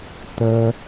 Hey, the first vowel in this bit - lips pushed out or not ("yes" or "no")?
no